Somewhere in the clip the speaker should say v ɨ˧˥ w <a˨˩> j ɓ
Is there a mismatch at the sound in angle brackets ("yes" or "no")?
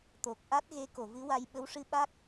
yes